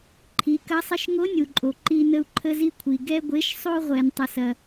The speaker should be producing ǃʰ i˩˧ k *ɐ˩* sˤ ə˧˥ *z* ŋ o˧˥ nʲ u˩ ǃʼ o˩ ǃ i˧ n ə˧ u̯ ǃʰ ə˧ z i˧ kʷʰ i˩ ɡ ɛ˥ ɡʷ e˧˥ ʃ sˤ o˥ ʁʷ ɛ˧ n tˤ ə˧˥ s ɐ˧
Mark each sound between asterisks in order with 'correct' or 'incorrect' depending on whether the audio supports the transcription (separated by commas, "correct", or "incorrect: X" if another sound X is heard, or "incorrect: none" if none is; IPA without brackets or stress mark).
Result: incorrect: ɐ˧˥, incorrect: ʃ